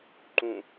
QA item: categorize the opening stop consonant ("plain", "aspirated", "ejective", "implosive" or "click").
click